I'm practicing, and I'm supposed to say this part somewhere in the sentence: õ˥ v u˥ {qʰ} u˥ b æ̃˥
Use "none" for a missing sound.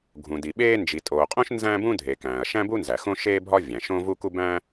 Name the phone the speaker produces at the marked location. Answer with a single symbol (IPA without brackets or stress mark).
k